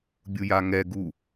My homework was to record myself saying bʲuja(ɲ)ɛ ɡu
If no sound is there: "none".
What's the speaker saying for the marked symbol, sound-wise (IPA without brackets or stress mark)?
ŋ